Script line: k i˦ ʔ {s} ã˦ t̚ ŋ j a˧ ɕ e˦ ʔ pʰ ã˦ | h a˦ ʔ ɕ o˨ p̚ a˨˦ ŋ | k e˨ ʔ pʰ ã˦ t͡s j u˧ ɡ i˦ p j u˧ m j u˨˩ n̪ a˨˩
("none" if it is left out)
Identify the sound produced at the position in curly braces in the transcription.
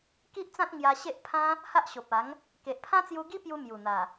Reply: t͡s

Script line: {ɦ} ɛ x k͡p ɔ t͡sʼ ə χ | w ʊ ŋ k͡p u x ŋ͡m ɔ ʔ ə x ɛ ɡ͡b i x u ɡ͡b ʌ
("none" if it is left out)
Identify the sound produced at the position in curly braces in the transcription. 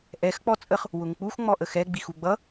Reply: ʔ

